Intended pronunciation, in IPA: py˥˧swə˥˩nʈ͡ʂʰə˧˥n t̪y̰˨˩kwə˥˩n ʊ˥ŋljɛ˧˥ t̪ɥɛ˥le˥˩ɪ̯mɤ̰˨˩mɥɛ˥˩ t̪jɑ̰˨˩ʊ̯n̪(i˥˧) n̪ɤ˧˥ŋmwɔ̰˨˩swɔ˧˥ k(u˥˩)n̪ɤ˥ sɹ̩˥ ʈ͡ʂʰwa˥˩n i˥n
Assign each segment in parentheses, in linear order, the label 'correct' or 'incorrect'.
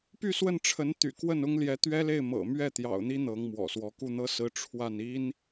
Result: incorrect: i˥, correct

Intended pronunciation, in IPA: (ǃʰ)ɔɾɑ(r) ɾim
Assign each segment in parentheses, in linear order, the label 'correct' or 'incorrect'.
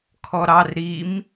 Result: incorrect: kʰ, correct

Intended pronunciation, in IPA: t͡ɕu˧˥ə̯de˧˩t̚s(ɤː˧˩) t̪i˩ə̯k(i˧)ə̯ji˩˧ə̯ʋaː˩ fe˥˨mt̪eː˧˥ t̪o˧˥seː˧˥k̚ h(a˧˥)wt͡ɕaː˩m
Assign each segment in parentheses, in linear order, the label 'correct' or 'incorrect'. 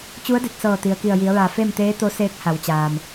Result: correct, incorrect: i˧˩, incorrect: a˩˧

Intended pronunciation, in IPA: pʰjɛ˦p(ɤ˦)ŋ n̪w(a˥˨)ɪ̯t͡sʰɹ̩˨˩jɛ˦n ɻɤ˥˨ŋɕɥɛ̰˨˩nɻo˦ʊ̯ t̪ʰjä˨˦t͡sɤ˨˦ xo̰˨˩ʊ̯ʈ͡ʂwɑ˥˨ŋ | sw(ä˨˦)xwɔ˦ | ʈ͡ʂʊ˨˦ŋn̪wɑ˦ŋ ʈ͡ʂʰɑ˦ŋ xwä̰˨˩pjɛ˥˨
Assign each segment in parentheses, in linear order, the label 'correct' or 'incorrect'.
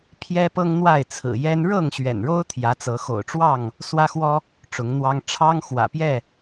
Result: correct, correct, incorrect: ä˦

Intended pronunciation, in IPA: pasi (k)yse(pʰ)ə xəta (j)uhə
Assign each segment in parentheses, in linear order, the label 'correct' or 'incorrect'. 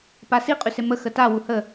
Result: incorrect: qʼ, incorrect: m, incorrect: w

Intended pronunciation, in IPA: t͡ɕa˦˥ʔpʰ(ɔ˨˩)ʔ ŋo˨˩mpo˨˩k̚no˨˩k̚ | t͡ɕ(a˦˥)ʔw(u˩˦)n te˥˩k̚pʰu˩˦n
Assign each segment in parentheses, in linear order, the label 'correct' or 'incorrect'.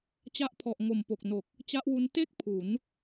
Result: correct, correct, incorrect: u˦˥

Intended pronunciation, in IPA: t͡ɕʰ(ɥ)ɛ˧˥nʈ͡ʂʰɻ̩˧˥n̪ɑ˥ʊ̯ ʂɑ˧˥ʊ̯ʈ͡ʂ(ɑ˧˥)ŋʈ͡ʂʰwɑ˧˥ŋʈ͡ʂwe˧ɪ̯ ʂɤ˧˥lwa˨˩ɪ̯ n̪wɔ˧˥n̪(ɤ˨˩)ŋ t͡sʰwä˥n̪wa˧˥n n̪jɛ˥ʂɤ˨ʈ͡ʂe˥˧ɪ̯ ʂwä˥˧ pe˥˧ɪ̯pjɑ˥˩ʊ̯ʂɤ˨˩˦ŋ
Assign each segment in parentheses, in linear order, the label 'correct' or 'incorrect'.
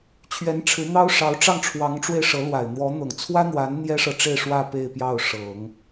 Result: correct, incorrect: ɑ˥˩, correct

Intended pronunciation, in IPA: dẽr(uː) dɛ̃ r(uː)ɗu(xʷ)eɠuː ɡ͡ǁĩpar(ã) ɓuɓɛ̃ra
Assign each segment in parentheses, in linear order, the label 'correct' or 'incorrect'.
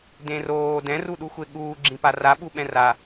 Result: incorrect: oː, incorrect: u, correct, incorrect: a

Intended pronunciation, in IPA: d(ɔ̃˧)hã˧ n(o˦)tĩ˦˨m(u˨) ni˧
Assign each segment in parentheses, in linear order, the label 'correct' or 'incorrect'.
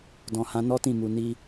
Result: incorrect: ɔ̃˨, incorrect: ɔ˦, correct

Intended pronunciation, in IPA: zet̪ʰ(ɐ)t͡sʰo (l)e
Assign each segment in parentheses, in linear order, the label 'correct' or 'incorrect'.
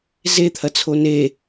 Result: correct, incorrect: n

